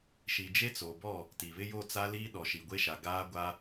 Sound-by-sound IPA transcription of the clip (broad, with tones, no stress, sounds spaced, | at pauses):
ʃ i˨ d͡ʒ e˦ t͡s o˨ b ɔ˦˨ | t i˨ β ɪ˦ j o˦˨ t͡s a˦ l i˦ ɗ ɔ˨ ʃ i˨ ɡʷ e˦ ʃ a˨ ɡ aː˦ ɡʷ a˦